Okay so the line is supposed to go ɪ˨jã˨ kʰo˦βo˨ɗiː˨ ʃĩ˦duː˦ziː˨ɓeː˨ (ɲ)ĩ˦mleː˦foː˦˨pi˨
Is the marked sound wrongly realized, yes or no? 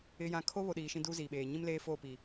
no